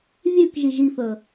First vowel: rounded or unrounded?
rounded